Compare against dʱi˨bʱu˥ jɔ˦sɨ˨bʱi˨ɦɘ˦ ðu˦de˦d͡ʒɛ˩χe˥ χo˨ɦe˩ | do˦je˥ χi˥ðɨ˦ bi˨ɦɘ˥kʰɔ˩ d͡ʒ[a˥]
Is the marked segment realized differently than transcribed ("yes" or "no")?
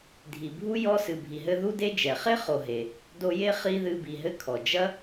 yes